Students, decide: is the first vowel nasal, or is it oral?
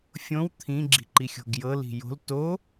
nasal